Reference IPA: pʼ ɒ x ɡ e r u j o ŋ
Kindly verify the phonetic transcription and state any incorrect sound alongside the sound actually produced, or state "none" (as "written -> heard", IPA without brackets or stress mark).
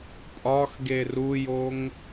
none